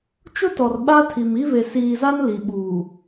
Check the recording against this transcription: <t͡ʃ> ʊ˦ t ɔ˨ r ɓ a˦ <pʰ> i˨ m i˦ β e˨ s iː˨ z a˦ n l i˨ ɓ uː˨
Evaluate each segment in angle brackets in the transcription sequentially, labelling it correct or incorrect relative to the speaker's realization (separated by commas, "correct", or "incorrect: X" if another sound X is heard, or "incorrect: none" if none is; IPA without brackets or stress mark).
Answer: correct, incorrect: tʰ